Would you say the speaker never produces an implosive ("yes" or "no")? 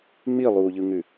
yes